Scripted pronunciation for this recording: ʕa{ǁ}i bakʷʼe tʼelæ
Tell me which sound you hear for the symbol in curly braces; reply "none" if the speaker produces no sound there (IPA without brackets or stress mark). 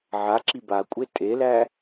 ǁ